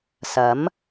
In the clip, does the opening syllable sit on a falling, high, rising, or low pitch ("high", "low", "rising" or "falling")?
rising